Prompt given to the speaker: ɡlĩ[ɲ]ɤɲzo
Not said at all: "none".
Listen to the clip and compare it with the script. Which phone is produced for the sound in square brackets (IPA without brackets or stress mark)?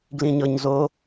ɲ